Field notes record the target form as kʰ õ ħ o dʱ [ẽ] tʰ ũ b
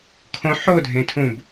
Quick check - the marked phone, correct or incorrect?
correct